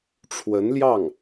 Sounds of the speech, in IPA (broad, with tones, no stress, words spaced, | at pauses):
ʈ͡ʂʰwə˧˥nljɑ˥˩ŋ